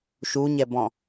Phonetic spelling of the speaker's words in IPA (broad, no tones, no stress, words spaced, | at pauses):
ʃuɲɛbɔ̃